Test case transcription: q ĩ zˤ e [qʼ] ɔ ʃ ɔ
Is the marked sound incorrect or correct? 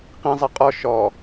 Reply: correct